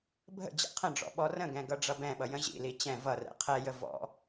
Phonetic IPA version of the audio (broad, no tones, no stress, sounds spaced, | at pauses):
bʱ ə̰ d͡ʑ ɛ̰ qʰ ə̃ ɖ͡ʐ ɔ̰ ɓ ɔ r ə̃ ɡ ɛ̃ ɡ ʌ ɖ͡ʐ ʌ b ɛ̃ ɓ ʌ j ə̃ ʑ ḭ l i t͡ɕ ɛ̃ v ʌ r ɛ̰ qʰ ɛ j ə v ɔ̰